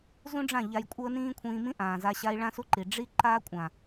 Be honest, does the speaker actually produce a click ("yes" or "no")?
yes